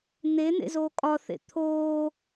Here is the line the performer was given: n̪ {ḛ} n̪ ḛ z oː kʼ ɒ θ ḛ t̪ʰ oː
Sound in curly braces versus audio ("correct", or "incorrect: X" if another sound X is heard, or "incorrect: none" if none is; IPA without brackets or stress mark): incorrect: e